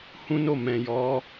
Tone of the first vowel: high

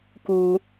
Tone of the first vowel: low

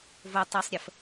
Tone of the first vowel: low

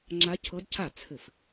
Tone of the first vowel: rising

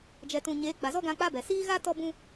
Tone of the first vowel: low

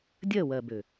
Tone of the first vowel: falling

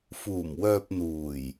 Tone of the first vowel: low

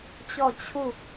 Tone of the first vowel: falling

